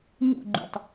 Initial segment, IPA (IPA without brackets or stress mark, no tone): ɲ